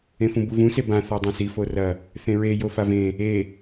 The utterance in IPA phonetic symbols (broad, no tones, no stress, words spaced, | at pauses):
ẽfũbuvũ sebã θɔdˤɐ̃si forɐ | θẽɹe jofavẽ | e